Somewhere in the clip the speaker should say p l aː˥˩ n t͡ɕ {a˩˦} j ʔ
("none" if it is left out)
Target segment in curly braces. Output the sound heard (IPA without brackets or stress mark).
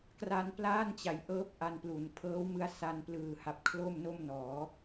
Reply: a˩˦